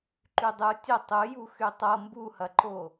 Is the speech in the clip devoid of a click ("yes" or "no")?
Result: no